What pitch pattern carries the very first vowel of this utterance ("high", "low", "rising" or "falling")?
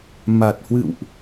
low